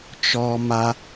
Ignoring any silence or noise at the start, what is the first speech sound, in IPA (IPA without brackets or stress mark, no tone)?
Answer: t͡ʃ